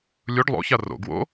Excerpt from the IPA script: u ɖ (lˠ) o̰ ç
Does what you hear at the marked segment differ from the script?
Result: no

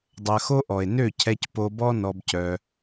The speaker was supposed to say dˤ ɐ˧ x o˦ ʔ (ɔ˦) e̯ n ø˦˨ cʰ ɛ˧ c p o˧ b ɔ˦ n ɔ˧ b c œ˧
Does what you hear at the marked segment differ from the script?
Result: yes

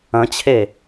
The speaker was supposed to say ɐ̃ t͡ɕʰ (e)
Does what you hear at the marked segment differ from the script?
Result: no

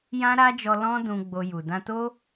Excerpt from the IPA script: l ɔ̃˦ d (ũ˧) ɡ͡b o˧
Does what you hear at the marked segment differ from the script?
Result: no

